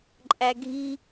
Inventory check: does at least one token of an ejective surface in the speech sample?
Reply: yes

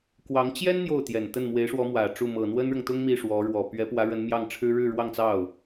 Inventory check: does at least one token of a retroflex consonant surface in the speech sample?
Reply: yes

